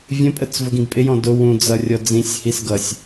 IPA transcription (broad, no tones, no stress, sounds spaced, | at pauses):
vʲ ə̃ pʼ ə t͡s v ʊ ɡ ĩ ɡ pʼ ɪ j ɔ̃ d ʊ w ũ d͡z ʌ rʲ ɔ d͡z ĩ sʲ h i s ɡ ʌ sʲ